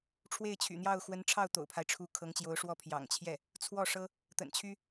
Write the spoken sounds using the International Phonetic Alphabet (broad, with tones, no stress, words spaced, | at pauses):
ʈ͡ʂʰwe˥˩ɪ̯t͡ɕʰy̰˨˩n̪jɑ˥˩ʊ̯ xwə˧˥nʈ͡ʂʰɑ˥˩ʊ̯ t̪o̰˨˩ʊ̯pʰa˦ɪ̯ʈ͡ʂʰu˧˥ kʰɤ˧˥ŋt͡ɕjo˧˥ʊ̯ʂwɔ˥˩ pʰjɑ̰˨˩ŋt͡ɕʰjɛ˥˩ | t͡sʰwɔ˥˩ʂɤ˥ | t̪ə̰˨˩nt͡ɕʰy˥